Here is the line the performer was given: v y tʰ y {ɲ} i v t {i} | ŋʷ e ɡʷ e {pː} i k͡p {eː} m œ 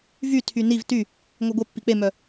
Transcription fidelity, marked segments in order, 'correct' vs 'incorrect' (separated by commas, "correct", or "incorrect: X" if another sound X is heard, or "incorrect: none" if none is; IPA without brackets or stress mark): incorrect: n, incorrect: y, correct, incorrect: e